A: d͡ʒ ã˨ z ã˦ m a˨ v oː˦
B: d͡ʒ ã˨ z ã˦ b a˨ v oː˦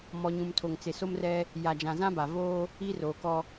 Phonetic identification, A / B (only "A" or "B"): B